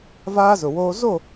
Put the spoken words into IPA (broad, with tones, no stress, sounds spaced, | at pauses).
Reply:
v aː˦ z ʊ˨ w oː˦ z o˦˨